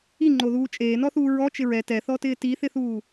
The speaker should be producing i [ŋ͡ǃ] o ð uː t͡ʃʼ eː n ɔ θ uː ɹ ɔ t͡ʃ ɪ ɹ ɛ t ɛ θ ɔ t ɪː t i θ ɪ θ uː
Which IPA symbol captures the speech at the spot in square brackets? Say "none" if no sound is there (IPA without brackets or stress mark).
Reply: ŋ͡ǃ